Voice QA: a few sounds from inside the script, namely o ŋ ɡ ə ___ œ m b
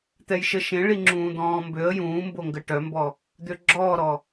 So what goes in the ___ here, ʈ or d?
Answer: ʈ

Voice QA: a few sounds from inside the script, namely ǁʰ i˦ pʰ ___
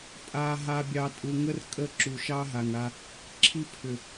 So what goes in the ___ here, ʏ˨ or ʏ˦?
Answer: ʏ˨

